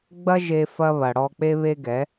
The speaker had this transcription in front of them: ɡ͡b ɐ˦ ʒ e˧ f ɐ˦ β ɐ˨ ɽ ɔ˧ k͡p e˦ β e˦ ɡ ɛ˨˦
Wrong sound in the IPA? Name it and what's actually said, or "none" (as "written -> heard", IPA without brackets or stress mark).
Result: none